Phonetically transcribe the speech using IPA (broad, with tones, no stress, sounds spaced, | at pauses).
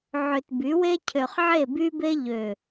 ʕ ø˨ t b y˨˦ w e˦ cʰ ø˨ χ ʕ e˦˨ b y˦ b e˦ ʎ ø˨